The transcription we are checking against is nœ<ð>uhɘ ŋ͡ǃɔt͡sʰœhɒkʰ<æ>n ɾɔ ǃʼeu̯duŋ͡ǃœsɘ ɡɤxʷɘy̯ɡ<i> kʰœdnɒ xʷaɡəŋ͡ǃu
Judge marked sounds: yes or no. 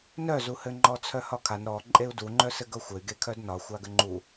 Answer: no, no, no

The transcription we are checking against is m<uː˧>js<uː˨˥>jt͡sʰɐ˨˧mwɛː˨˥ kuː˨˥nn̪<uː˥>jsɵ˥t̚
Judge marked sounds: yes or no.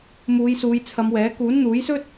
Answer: no, no, no

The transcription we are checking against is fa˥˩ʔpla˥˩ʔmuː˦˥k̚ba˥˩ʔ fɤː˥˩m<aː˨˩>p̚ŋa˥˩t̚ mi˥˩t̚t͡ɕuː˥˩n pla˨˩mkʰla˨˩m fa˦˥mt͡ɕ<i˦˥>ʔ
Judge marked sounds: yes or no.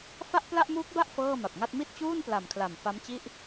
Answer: no, no

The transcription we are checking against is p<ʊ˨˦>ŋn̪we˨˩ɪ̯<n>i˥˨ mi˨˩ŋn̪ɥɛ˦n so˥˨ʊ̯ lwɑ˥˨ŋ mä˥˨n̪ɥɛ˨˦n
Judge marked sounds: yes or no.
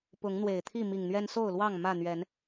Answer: yes, no

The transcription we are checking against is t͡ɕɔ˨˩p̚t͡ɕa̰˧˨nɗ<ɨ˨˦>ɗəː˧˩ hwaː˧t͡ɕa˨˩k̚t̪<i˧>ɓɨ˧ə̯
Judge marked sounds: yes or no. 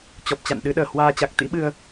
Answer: yes, no

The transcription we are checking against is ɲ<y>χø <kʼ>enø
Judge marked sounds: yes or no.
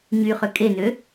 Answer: yes, yes

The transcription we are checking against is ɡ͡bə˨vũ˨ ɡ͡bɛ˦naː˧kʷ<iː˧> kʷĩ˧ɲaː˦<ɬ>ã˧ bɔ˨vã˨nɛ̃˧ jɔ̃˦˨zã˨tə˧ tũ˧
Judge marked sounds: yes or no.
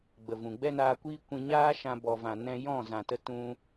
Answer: no, no

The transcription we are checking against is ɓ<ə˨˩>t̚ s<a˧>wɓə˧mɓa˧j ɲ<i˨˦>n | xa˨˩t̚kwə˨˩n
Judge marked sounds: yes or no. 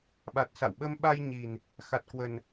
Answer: no, no, no

